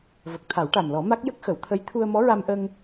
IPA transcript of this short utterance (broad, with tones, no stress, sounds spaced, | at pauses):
v ə˨˩ k̚ t̪ʰ a˨˩˦ w ʈ a˨˩ m l ɔ˨˩˦ m a˦˥ k̚ j ə˦˥ k̚ x ə˨˩˦ w t̪ʰ ə˧˥ j t̪ʰ u˧ ə̯ m ɔ˧˥ ɹ a˧ m ʔ ə˧ ŋ